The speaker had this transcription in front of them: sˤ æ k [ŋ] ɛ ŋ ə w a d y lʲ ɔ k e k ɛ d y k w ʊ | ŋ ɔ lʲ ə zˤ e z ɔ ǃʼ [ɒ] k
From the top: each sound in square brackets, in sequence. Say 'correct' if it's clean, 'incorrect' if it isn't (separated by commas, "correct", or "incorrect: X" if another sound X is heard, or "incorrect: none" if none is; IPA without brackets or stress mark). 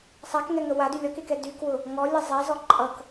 correct, incorrect: ʌ